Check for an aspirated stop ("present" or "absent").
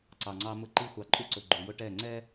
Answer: absent